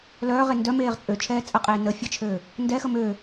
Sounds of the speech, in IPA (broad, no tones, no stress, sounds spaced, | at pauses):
l œː ʁ e n d œ m eː ʁ t͡sʼ ø t͡ʃʰ ɛː t͡sʼ ə qʼ eː n ə fʲ ə t͡ʃʰ øː | n d ɛ x ə m øː